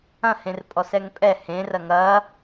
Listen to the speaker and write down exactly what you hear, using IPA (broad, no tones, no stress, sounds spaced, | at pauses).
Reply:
ɐ̃ h ẽ r pʼ ɔ s ɛ ŋ pʼ ɛ h ẽ r ɐ ŋ ɐ